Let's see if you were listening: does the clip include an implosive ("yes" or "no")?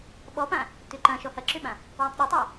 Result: yes